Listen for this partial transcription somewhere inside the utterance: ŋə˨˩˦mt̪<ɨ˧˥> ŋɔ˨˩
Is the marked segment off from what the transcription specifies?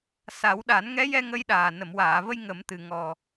yes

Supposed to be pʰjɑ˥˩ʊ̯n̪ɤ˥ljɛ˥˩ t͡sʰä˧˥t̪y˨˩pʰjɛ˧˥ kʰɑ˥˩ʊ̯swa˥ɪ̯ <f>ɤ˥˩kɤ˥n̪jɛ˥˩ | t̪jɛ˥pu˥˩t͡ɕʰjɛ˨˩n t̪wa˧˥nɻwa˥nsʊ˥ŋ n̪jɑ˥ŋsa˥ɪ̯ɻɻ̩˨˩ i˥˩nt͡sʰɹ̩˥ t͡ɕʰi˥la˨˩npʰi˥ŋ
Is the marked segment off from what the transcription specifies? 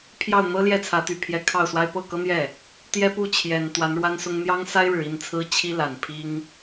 yes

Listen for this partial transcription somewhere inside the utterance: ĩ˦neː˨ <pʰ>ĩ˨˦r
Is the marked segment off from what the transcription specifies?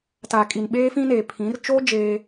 no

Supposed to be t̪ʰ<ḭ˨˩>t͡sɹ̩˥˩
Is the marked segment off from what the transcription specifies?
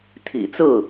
no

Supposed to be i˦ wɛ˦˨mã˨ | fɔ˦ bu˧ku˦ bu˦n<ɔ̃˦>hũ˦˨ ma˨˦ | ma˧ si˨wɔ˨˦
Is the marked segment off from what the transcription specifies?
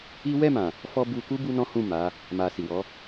no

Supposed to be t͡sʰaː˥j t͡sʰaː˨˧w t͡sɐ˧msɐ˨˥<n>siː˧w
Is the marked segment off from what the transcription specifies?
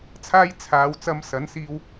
no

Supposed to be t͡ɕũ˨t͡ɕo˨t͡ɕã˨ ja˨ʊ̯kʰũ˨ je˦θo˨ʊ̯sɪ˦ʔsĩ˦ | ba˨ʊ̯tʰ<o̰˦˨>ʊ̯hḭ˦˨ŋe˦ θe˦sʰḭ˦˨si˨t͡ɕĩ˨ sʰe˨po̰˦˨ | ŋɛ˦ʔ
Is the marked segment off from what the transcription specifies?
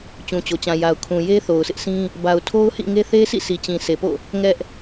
yes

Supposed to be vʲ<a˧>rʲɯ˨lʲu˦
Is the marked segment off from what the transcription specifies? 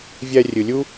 yes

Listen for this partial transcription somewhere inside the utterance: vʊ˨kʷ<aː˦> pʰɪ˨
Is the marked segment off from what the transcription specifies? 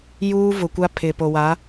yes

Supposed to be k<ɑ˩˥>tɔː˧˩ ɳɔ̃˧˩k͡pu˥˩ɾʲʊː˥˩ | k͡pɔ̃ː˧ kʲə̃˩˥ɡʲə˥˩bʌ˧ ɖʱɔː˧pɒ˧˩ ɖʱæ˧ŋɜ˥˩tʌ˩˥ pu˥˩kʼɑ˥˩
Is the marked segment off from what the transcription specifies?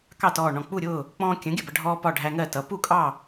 yes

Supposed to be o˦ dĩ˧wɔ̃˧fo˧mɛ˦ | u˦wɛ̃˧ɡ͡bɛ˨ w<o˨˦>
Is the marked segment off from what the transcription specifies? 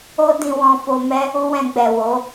no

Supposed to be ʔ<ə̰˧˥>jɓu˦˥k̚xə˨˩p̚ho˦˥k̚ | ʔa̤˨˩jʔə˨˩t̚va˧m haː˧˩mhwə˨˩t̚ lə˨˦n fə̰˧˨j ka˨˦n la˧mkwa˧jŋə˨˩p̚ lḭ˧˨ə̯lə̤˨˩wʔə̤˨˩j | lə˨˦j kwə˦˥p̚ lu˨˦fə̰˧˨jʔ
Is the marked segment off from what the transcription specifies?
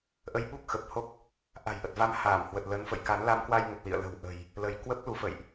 yes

